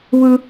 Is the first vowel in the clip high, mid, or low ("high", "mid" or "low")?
high